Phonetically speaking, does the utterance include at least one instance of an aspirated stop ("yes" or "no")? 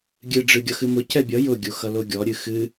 no